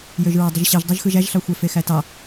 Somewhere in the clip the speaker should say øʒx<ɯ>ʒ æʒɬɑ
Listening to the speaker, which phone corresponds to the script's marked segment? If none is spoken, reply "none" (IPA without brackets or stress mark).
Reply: ɯ